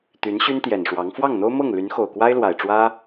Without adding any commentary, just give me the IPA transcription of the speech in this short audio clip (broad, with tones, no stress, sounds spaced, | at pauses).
t̪ y˧˥ n ɕ y˥ n t̪ j ɛ˨˩ n ʂ w ɑ˧˥ ŋ f w ɑ˥˩ ŋ n̪ o˥ ʊ̯ m ɤ˥˩ ŋ l y˧˥ n x o˨˩ ʊ̯ k w a˥ ɪ̯ l w a˨˩ ɪ̯ ʈ͡ʂ w ä˥